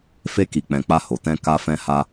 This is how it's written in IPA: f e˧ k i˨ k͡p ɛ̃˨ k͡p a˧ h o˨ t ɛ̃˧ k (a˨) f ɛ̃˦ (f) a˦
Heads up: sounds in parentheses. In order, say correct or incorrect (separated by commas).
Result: incorrect, incorrect